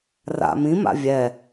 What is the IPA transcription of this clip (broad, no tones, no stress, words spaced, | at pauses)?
ra̰ mĩma̰ vʲɛ